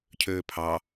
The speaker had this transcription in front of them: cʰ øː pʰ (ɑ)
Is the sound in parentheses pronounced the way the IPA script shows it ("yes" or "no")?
yes